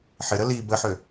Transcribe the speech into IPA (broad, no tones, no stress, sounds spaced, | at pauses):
ħ ɪ ɾ ə l i b ə ħ ø